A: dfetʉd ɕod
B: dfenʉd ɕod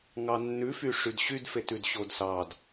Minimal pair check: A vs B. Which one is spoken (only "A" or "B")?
A